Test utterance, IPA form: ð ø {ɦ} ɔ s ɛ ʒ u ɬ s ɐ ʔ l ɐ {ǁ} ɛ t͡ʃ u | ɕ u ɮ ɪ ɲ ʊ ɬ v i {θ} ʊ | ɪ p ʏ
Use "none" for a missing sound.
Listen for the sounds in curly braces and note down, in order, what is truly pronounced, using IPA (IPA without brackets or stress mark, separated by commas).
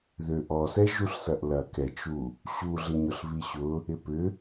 ʔ, k, ɕ